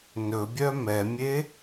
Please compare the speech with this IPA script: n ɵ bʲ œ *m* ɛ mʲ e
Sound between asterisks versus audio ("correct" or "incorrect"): correct